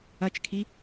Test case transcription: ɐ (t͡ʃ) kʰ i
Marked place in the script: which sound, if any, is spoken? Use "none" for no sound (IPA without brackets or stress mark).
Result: t͡ʃ